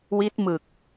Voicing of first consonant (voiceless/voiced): voiced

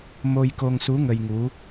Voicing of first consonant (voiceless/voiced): voiced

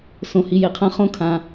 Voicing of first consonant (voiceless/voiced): voiceless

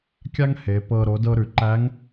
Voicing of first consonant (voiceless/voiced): voiceless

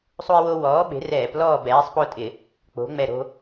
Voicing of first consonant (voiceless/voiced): voiceless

